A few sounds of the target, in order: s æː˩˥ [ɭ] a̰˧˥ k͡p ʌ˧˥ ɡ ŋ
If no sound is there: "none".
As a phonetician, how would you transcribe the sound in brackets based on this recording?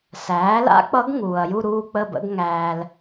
l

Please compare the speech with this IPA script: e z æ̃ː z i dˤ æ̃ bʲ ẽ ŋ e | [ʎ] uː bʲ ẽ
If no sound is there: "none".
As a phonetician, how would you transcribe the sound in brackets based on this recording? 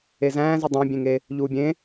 ʎ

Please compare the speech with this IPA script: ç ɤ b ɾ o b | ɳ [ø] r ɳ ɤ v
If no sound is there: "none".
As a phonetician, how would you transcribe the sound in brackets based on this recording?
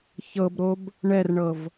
ɛ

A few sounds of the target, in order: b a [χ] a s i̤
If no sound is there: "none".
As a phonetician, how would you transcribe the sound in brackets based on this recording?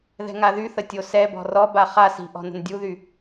χ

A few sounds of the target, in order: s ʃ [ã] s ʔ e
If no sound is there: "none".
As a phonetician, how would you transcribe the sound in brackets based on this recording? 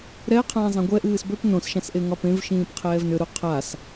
ã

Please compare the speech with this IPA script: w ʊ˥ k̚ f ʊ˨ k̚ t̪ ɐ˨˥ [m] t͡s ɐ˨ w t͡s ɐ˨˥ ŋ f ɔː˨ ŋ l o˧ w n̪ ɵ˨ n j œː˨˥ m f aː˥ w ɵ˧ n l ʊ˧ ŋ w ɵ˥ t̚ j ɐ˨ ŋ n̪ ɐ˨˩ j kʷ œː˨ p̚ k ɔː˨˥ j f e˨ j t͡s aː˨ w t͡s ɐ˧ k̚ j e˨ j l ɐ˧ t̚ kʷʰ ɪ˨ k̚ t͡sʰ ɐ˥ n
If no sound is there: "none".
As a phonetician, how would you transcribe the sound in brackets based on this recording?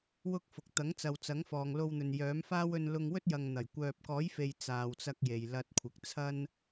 ŋ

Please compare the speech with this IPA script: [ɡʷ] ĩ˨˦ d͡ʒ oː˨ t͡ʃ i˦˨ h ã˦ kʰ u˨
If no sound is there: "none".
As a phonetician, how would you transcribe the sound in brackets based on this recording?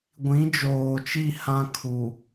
ɡʷ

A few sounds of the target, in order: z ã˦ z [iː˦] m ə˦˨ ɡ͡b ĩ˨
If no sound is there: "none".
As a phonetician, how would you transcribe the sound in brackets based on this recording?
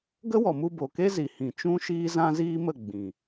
iː˦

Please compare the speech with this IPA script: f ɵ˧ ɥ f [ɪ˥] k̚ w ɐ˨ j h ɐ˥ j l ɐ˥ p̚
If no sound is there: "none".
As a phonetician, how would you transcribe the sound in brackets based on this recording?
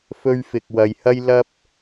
ɪ˨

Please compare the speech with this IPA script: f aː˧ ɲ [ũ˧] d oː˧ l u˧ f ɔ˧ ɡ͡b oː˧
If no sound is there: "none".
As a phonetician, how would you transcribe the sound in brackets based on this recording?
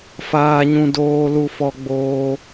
ũ˧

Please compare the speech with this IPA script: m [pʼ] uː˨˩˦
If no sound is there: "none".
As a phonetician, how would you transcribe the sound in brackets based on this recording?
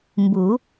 b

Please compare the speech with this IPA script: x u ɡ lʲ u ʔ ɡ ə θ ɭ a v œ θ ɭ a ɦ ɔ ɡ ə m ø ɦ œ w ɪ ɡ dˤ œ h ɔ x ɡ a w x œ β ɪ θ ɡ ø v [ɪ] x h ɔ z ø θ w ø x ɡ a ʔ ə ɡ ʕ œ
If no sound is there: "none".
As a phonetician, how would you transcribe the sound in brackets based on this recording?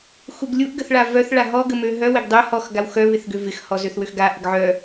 ɪ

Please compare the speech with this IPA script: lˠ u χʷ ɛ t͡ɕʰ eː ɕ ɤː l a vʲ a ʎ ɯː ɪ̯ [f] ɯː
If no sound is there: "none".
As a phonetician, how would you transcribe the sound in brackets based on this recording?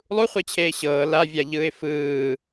f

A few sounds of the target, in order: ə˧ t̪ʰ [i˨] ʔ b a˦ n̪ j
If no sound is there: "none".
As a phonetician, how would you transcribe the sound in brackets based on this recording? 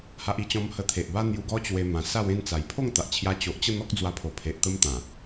e˨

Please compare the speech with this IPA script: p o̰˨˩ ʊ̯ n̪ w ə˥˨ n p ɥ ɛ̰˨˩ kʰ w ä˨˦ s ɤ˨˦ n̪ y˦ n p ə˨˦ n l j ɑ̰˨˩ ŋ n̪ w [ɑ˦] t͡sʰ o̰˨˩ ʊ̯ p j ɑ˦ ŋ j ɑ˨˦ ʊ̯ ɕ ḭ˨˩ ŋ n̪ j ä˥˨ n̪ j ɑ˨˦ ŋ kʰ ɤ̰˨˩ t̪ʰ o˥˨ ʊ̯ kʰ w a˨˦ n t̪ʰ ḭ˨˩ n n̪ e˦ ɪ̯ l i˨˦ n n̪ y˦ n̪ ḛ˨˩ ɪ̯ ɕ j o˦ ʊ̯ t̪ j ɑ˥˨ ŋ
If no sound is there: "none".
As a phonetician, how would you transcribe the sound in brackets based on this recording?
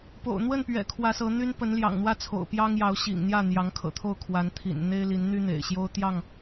ä˦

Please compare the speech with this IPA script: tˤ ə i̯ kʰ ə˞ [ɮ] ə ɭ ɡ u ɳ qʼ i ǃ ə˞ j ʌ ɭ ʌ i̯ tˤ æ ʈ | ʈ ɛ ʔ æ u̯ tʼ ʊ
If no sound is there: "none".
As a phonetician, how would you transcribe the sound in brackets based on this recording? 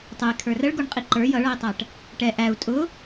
r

